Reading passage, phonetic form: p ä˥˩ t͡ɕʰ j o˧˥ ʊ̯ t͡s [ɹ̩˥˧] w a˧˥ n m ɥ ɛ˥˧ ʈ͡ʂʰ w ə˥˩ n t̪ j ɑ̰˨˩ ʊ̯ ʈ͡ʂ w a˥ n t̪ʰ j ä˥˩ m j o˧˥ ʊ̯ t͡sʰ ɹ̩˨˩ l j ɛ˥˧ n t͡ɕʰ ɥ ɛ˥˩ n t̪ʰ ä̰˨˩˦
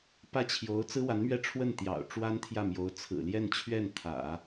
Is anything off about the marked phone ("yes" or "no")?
yes